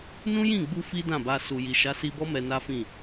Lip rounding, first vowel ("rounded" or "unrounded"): rounded